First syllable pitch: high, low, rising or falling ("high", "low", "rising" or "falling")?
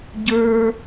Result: high